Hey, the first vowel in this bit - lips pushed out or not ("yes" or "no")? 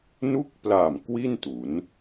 yes